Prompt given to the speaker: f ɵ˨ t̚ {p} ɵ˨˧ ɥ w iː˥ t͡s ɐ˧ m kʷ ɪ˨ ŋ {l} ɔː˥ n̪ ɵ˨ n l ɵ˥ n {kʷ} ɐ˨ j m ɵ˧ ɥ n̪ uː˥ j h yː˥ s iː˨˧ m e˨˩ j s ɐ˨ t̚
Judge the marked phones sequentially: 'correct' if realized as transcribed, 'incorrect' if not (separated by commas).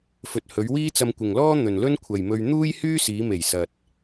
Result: incorrect, correct, incorrect